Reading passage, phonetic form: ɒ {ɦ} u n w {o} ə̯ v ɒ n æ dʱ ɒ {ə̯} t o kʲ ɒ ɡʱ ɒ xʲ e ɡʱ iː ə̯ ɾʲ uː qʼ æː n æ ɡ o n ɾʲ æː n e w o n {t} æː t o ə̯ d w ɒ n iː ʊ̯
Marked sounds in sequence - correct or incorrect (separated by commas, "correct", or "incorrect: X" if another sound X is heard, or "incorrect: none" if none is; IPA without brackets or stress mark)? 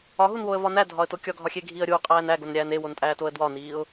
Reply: correct, correct, correct, incorrect: tʼ